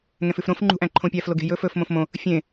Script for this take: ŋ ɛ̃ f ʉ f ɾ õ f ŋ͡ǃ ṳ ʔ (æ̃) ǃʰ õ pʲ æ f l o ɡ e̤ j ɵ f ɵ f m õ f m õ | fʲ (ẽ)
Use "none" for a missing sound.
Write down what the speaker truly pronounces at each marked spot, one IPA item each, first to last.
æ̃, ẽ

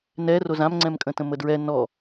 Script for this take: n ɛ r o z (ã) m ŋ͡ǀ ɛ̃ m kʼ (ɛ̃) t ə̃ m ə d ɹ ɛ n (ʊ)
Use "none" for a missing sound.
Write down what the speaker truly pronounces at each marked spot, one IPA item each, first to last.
ã, ə̃, ɔ

